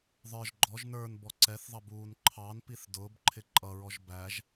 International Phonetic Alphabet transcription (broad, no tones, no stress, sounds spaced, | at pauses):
ðˤ ə˞ ʒ ɡ͡ǃ ɔ ʒ n ə˞ n b ɔ ǀ ɛ θ ðˤ ʌ b uː n ǃʰ ɑ n p i θ d ʊː b ǃʰ ɪ ǃʼ ʌ ɹ ɔ ʒ b æ ʒ